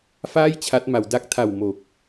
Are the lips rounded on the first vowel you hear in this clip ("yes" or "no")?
no